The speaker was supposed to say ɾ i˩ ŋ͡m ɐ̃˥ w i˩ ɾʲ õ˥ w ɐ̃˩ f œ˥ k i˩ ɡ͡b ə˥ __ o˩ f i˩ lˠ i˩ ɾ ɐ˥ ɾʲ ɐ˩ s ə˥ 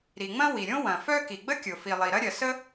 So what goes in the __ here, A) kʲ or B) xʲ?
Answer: A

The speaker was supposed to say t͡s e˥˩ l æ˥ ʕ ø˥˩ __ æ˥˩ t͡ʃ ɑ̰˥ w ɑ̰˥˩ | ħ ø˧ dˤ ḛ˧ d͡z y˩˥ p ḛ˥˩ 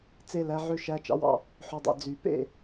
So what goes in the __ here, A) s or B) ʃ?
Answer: B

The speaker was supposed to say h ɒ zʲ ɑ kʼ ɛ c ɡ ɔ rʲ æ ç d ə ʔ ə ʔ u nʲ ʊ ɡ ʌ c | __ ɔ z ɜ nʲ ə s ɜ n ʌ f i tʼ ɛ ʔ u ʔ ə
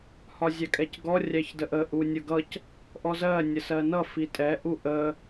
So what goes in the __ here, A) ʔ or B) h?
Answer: A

